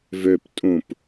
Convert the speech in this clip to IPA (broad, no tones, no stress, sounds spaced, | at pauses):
v ø p tʼ ũ p